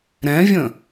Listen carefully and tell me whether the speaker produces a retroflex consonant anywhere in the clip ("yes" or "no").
no